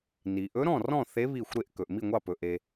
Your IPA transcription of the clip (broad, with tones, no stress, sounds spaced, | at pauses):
n i˩ ʔ ɵ˧˥ ɾ ɔ̃˥˨ r ɔ̃˥˨ θ e˧˥ β i˧˩ xʷ ɾ e˧˩ ʔ k ɵ˩ ʔ m i˥˨ ŋʷ ɑ˥˨ p ɵ˩ ʔ e˩